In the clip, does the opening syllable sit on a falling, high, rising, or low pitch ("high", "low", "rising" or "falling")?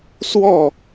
falling